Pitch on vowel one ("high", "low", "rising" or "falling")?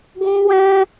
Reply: high